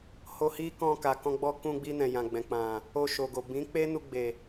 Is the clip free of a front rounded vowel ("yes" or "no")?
yes